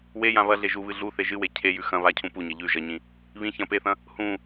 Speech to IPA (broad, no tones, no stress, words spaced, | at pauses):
wejã βɐɮe ʒuβɨ ɮu θeʒɨwe cʰejʉ xɐ̃ βacʰũ puɲɐ ʎʉ ʒɐɲĩ | βĩ çɐ̃ peθɐ̃ | hũ